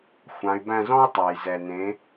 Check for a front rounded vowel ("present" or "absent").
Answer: present